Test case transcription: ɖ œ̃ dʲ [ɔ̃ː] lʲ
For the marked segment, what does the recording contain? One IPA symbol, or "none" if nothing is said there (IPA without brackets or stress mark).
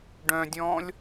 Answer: ɔ̃ː